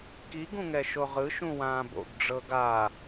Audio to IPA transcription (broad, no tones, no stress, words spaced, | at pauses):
kiɡ ũŋɛʃoʁɯ ʃũwãːbo̰ɡ ɖ͡ʐɤɡa